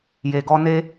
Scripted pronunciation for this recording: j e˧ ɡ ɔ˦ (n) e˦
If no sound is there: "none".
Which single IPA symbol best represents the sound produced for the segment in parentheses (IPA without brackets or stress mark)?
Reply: n